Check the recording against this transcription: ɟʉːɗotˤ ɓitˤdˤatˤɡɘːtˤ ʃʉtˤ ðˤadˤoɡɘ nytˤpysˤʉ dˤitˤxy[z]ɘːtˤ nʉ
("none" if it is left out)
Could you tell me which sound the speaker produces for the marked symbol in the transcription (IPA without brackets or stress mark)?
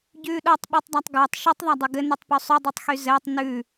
z